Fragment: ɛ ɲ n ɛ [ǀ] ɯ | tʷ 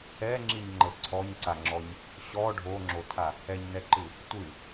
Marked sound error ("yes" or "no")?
yes